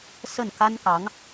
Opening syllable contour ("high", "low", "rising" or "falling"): falling